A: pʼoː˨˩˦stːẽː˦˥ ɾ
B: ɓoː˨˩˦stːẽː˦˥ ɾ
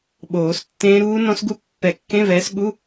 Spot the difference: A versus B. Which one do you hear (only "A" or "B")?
B